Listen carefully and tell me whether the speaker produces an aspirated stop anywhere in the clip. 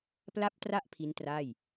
yes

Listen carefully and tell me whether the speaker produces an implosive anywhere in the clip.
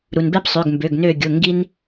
no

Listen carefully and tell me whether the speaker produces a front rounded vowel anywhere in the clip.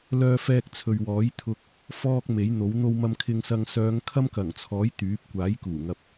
yes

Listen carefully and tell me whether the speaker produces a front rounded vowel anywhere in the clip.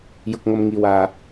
no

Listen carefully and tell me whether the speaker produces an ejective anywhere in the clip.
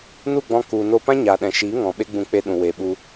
no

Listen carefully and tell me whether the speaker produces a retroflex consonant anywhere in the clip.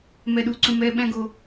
no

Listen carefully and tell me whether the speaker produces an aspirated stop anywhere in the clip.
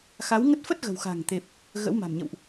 no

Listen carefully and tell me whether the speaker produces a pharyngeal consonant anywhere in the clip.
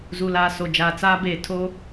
no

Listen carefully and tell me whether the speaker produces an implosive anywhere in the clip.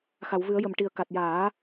no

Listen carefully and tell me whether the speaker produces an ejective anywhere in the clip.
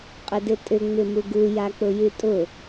yes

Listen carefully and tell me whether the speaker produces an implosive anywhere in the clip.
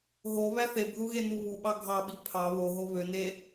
yes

